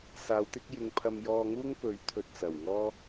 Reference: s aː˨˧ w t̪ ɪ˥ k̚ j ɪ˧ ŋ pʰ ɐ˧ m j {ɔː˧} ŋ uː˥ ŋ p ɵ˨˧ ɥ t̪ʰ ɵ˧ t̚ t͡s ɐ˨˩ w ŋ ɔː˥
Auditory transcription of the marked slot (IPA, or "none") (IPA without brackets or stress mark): ɔː˧